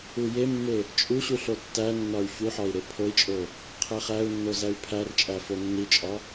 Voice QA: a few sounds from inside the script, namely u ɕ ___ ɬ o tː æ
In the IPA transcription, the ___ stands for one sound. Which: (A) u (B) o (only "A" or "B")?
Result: A